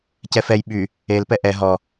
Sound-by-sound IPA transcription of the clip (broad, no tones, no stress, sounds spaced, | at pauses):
c ɛ f ɛ j ɓ y | e l p ɛ ʔ ɛ ɦ ɔ